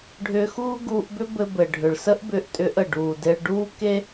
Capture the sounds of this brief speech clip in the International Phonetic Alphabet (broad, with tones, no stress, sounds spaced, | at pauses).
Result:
ɖʱ ʏː˧ x uː˥ ɡ uː˧ ʔ b ʏ˥ b ɘ˧ b ɘ˩ ɖʱ ʏ˩ ɭ s ə˥ ʔ b ʏː˧ ʔ tʼ ʏ˧ ʔ ə˩ ɖ uː˩ d e˧ ɭ ɖ uː˥ k e˥